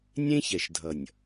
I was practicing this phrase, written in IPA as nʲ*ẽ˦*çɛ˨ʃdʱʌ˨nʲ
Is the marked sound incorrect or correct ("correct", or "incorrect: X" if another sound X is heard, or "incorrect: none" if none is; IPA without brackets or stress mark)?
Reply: correct